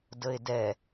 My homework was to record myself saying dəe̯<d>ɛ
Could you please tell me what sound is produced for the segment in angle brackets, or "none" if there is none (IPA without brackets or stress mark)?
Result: d